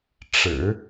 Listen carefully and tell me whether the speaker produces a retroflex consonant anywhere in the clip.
yes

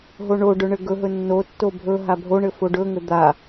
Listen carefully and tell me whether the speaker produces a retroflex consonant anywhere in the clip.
yes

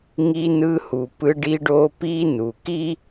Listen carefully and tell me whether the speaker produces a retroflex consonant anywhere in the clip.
yes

